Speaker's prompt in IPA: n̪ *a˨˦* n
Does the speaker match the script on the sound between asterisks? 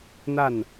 no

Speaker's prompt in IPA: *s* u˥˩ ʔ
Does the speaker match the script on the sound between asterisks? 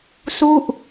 yes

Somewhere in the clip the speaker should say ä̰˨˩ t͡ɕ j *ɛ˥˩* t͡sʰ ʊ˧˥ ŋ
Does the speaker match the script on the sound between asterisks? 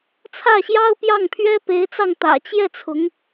yes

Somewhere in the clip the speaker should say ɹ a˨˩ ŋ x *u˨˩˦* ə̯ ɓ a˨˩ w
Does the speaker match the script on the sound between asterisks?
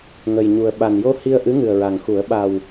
yes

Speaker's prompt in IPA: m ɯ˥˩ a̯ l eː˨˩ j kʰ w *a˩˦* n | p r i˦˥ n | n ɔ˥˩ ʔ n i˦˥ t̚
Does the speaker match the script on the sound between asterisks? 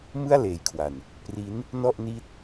no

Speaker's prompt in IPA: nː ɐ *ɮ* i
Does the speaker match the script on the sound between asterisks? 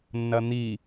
no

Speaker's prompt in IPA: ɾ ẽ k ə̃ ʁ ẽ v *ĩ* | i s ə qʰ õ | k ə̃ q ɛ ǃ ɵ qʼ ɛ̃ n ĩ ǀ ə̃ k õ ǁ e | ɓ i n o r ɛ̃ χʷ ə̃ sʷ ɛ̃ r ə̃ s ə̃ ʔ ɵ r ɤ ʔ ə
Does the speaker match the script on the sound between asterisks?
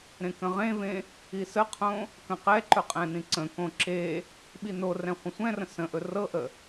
no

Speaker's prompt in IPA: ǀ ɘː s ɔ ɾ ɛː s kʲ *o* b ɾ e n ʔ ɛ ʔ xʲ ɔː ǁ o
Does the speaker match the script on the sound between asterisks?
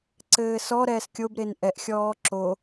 yes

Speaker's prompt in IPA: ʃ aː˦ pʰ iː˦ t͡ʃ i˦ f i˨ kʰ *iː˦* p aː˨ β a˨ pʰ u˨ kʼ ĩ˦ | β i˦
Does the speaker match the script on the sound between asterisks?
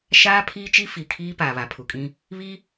yes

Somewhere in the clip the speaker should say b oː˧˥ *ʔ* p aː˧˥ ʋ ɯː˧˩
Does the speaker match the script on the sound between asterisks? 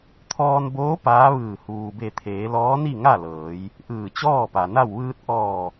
no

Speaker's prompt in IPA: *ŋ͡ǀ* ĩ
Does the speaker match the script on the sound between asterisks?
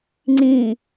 yes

